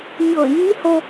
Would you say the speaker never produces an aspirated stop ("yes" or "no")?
yes